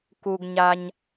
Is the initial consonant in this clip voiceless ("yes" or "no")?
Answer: yes